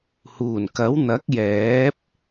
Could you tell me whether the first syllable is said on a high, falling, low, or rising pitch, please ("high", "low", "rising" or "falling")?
low